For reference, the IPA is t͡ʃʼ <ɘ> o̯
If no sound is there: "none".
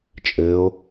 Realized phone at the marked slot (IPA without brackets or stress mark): ɘ